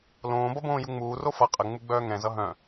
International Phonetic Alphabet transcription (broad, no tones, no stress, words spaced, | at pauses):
lõːbʌ bõːjuŋ͡muːro fʌ qʼəŋ͡mu ɡ͡bœːŋɛ̃zʌ ɦœ̃